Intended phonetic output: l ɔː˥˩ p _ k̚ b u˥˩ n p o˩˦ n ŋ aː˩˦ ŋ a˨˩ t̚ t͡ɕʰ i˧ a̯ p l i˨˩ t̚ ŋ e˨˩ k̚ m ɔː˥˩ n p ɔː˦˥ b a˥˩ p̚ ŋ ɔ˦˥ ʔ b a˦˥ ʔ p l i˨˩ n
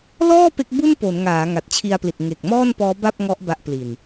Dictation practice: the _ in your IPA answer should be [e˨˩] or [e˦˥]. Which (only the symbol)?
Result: e˦˥